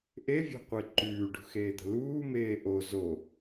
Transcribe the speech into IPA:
ʔ e vʲ ɔ̤ qʷ e ǃ ʉː ɖ ṳ x eː d̪ ə̤ l uː m eː ʔ o z o

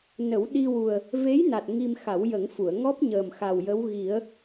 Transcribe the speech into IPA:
n ə˨˩˦ w ɗ i˧ w u˨˩ ə̯ | v e˧˥ j n a˨˩ t̚ ŋ i˧ m x a˨˩˦ w j ə˨˩˦ ŋ f u˨˩˨ ə̯ ŋ ɔ˦˥ p̚ ɲ əː˨˩ m x a˨˩ w j ə˧˥ w ɣ i˨˩˦ ə̯

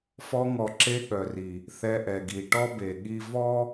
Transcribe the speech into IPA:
f ɔ˧ ŋ ɔ˨ ǁ e˧ ɠ œ˨ r i˨ | θ ɛ˧ ʔ ɛ˨ ɡ i˨ ʈ ɔ˦ b e˨ ɠ i˧ v ɔ˦

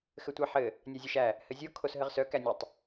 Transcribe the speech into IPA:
x ɘ tʷ æ ħ ɘ | nʲ a zʲ ɘ ʃ æ | h ɘ zʲ o kʰ o s ɦ ɘ ʁ s œ k æ nʲ o tˤ

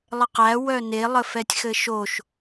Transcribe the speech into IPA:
lˠ ə q æ w œ n e lˠ ə f ɛ tʲ x ɘ ʃ o ʃ

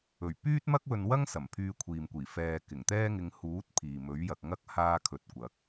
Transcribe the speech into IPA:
ɵ˨˩ ɥ p yː˥ t̚ m ɐ˥ k̚ w ɵ˧ n w ɐ˥ ŋ s ɐ˨˩ m pʰ yː˧ kʷʰ iː˨ m kʷ iː˨˩ f ɛː˨ k ɪ˨˩ ŋ t̪ ɛː˥ ŋ ɪ˧ ŋ h uː˨˥ t̚ pʰ iː˨ m ɵ˨˥ ɥ j ɐ˨ k̚ ŋ ɐ˥ k̚ h aː˧ kʰ ɵ˨˥ t̚ kʷ ɐ˨˥ k̚

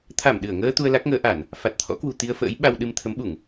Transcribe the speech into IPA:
t̪ʰ a˧˩ m ɗ ɨ˧˩ ə̯ ŋ əː˧ t̪ u˧ ə̯ l a˦˥ k̚ ŋ əː˨˦ ʔ a˧˩˨ n | f a˨˩ t̚ t̪ʰ ɔ̰˧˥ k w ṳ˨˩ t̪ i˧ ə̯ f ə̰ː˧˥ j ɓ a˧ w ɗ ɨ˧ m t̪ʰ ə˨˦ m ɓ u˧˩˨ ŋ

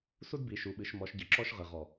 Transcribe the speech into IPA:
s u˥ d b i˩˧ ʃ u˩˧ ɓ ɨ˩˧ ʃ m ɔ˩˧ ʃ ɟ ɨ˩ ǁ ɔ˧ ʃ ʁ ɨ˩ ʁ ɔ˩

